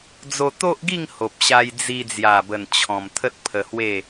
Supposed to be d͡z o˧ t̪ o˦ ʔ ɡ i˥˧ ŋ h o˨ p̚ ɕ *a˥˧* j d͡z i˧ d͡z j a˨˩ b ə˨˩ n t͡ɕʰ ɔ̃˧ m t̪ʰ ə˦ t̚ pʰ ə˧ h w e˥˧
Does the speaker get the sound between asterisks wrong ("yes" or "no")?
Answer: yes